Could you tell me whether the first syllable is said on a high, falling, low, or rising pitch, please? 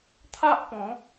high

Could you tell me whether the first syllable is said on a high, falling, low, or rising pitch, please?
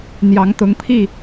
rising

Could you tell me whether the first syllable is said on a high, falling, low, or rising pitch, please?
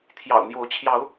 low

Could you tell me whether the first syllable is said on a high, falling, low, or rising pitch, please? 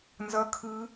high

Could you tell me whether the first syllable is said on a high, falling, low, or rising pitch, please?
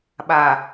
low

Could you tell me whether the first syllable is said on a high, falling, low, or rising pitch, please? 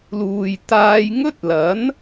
low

